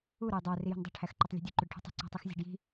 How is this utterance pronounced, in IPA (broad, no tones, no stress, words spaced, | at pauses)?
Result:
u ɾojdˤæ rijo̤ndˤo̤ ʈʰæxǃɒtˤlʲo̤dʲu ǃuɖʈʰṳtˤṳ ǀæ̤tˤixzʲæ̤ɖji̤